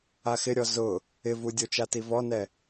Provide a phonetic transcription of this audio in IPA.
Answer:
axɪɾʲɔ zʊ | ɪvudʲo t͡ʃativɔnɛ

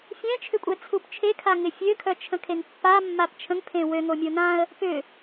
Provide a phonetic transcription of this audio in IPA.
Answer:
fʲɛ̃t͡ʃʰʏ kʷʼɛt͡sʰupt͡ʃʰe kʰaŋɪfʲøkʰœ t͡ʃʰə̃kʰeŋpːa mːapt͡ʃʰə̃ŋpʰẽ wøŋo mʲonãə̯ | pʏ

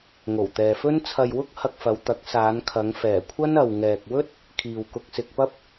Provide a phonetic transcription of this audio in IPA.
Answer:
ŋo˨˩wt̪ɛː˨fɵ˥n t͡sʰɐ˧jwʊ˥k̚ hɐ˧k̚fɐ˨˧wt̪ɐ˨˥k̚ saː˨˧nkʰɐ˨˧ŋ fɛː˨˩kʷʰɐ˥n ɐ˨wŋɛː˨k̚ wɵ˥t̚ | kʰiː˨wkʊ˧k̚sɪ˧k̚ pɐ˥p̚

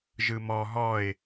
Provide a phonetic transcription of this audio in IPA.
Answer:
ʒɯmɔ ɦɔɪ̯

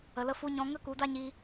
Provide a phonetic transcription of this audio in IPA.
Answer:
ə˨lə˧fu˧ɲɔ̃˧ ŋə˦ku˨˦da˦ɲiː˧

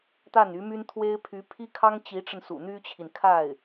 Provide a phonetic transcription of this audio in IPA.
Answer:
t̪a˥˩ny˧˥my˥nt̪ʰwe˥ɪ̯ pʰy˧˥pʰi˥kʰɑ˥ŋ t͡ɕi˧˥ʈ͡ʂə˧n sṵ˨˩n̪y˥t͡ɕʰi˨n kʰa˥˩ɪ̯

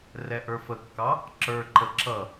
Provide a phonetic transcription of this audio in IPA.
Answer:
rɛʔə˞fəkːɑ | ǁə˞ǃə ǁʌ

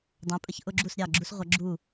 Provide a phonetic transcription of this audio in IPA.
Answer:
dˤæ̃˩˥ pʼə˧˩çʔʊ˥ɡ͡ǁu˥˩s ɾʲɑ˥˩ɡ͡ǁu˥sʁʷʌ˩˥ ɡ͡ǁu˥˩

